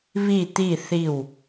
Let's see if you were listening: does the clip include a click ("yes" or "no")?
no